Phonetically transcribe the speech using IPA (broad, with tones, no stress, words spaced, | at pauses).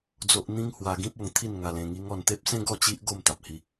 d͡zo˦ʔ n̪ĩ˦ŋhwa˧ɡĩ˦p̚ o˧ŋt̪ʰi˥˧n ŋa˧lẽ˧ŋi˦ŋɔ˥˧n t̪e˦p̚sẽ˦ ɡɔ˥˧t͡ɕi˦ʔ ɡo˥˧mt̪a˨p̚ hi˦